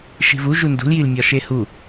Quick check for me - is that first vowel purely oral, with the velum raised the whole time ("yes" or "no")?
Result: yes